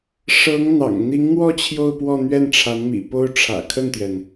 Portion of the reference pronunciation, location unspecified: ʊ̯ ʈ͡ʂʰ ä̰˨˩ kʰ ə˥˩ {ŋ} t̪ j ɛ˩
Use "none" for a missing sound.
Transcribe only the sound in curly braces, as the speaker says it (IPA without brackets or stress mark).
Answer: n